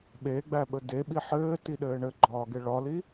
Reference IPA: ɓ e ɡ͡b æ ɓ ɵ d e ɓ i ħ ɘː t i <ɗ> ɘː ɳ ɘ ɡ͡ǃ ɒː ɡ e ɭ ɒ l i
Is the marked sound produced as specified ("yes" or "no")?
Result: yes